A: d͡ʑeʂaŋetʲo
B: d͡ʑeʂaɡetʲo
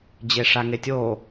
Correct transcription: A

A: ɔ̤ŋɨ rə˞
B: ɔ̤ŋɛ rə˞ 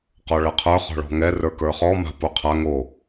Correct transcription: B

